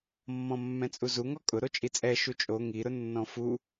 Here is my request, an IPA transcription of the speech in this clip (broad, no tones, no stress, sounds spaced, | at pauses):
mː ɔ̃ mː ɛ̃ t͡sʼ u z u ŋ ɔ kʼ ʊ ɾ o t͡ʃʼ i t͡sʼ ɛ ʃ u t͡ʃʼ o ŋ i ɾ ʊ nː ɔ̃ f u